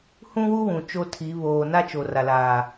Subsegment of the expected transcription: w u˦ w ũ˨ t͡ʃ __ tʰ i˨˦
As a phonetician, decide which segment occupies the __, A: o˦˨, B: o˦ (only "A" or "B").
B